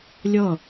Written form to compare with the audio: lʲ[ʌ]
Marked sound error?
no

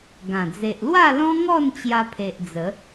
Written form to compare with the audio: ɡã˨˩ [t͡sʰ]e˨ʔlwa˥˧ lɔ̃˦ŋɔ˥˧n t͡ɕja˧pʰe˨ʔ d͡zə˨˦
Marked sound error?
yes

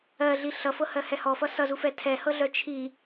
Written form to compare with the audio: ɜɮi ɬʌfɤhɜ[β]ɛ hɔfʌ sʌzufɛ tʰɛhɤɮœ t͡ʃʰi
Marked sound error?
yes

